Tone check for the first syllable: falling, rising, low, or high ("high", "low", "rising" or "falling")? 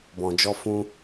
low